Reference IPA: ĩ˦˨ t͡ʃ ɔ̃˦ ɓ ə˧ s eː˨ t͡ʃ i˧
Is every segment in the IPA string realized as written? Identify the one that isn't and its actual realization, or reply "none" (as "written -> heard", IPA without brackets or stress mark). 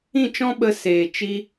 none